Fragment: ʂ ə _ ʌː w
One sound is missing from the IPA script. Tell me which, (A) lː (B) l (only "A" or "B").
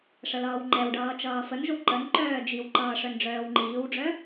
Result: B